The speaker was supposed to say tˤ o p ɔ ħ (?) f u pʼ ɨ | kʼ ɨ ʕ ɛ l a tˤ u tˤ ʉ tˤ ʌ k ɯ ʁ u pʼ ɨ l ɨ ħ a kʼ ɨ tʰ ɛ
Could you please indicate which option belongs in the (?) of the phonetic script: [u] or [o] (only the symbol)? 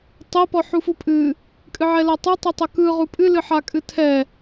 u